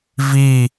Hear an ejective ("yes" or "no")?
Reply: no